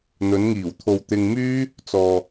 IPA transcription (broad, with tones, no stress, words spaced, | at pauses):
n̪ɵ˨˧nŋiː˨˩w t̪ʰo˨wt̪ɪ˧ŋmyː˥ | t͡sɔː˨